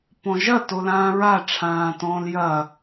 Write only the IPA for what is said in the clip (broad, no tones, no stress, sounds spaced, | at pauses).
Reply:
p ɔ̃ ʒ ɐ t o l ãː ɹ a ʈ͡ʂʰ ãː t ɔ̃ː l j ɐ